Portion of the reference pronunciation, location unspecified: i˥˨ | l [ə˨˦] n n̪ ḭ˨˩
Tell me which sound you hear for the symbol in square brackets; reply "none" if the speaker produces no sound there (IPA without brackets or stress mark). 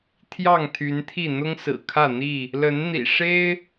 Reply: ə˨˦